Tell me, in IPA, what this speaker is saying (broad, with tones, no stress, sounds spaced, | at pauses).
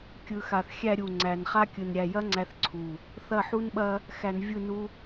kʲ ɯ˨ x a˨ θ xʲ æ˧ ɾʲ u˨ ŋ͡ǀ æ˨ n χ a˦ kʲ ɯ˨ n ɾʲ æ˨ j ɐ˦ ŋ͡ǀ æ˧ θ ǀʰ u˨ | θ ɐ˦˨ ħ u˦ n ɓ ɐ˦ | x æ˧ n vʲ ɯ˦˨ n u˦